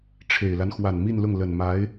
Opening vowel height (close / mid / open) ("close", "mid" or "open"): mid